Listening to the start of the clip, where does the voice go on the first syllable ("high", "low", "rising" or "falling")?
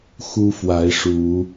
high